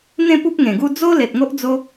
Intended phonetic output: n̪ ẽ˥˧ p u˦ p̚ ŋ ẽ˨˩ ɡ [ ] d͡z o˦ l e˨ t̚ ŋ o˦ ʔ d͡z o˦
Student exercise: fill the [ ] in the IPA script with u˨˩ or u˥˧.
u˥˧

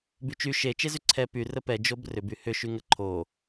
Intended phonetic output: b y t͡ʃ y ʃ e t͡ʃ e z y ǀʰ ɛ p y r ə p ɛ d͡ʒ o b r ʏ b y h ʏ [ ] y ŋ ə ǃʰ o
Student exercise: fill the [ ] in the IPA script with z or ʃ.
ʃ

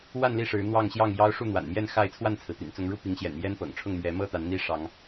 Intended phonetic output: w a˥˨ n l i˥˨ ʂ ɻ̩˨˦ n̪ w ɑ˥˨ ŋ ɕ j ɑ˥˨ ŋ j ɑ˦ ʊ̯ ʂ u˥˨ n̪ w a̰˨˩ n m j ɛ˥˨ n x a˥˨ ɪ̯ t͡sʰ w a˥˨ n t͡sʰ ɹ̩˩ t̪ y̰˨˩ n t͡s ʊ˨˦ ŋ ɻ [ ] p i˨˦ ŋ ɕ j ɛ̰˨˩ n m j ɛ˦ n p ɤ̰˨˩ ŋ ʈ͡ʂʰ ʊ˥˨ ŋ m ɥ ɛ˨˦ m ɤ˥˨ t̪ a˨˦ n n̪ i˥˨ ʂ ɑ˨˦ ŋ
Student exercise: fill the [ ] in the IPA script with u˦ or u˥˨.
u˦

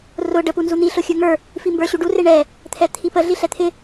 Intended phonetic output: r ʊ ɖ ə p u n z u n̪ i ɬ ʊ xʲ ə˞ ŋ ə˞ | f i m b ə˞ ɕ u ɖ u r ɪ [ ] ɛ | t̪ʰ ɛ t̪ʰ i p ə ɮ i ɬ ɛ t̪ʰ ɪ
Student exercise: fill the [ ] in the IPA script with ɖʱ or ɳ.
ɳ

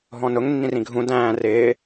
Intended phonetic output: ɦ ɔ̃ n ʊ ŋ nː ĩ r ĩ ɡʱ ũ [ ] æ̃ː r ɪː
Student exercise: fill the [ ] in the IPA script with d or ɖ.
d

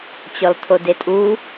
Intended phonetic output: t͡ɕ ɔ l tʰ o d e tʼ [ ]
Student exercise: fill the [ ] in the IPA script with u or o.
u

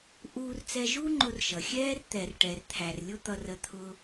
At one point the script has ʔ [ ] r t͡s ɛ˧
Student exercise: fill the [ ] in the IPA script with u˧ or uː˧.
uː˧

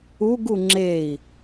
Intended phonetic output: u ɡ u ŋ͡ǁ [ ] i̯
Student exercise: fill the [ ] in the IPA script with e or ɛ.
e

